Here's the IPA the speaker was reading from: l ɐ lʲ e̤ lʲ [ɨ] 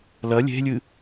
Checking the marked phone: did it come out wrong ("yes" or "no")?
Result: no